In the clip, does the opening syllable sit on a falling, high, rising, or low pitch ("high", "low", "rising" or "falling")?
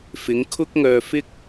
rising